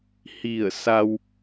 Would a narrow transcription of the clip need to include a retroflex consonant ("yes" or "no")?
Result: no